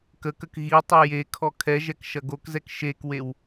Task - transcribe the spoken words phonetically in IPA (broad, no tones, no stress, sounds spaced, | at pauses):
k ə k ə k ɣ i tˤ i j e kʰ ɔ kʰ ɛ ʒ ɛ k ʃ ɐ ɡ o k z ɛ k ʃ e k w e w